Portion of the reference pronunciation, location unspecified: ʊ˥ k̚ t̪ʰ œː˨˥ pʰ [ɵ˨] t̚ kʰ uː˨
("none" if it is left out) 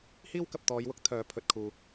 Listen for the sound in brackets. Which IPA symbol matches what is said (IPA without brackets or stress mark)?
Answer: ɵ˨